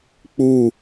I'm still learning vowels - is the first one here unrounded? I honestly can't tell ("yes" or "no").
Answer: no